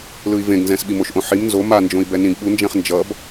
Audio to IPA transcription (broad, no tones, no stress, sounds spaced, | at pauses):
l ɯ i̯ v ẽ ɡ n z ɛ̃ s ɓ i m o ʃ ʔ õ ħ i m n z o m a n d͡ʒ õ i̯ b ɛ n ĩ ɡ ɓ u n d͡ʒ ɛ̃ χ n d͡ʒ ʌ b